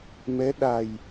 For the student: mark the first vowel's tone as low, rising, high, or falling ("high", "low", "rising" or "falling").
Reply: rising